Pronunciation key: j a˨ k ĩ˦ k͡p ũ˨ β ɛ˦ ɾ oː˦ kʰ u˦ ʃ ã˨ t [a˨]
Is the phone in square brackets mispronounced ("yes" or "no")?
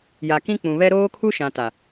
no